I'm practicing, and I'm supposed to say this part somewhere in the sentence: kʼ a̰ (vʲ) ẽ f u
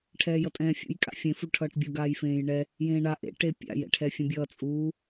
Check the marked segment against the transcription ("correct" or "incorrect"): incorrect